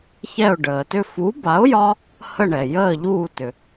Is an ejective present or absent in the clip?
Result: absent